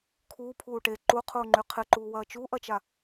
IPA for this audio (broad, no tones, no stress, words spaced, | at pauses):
kʰuːpʰuː ʈe ǃuqʰuːŋ͡ǃy qʰɪǃuːwɐː t͡ʃuʔɐt͡ʃa